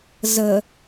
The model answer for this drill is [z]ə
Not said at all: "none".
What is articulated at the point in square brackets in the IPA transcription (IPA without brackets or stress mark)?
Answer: z